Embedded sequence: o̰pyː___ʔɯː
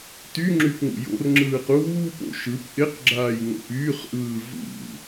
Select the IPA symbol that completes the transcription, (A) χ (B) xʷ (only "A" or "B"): A